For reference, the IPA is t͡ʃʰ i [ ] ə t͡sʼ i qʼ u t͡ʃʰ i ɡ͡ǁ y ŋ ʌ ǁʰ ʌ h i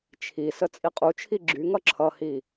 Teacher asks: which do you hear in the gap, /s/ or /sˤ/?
s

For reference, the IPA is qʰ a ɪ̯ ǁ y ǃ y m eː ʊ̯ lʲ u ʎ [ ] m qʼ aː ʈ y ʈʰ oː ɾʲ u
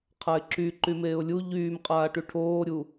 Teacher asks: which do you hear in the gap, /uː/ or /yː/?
yː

